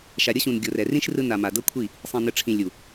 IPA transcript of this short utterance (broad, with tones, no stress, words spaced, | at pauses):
ʃa˨ɾʲɤ˦ɕũ˨n ɡʲo˨rɛ˨ rĩ˦ʃrɯ˧na˨ ma˨dɤ˦kʷʰi˦˨ | sˤĩ˨nɯ˨ʈ͡ʂʰĩ˨ lʲu˨